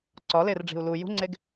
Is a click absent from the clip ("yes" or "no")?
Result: no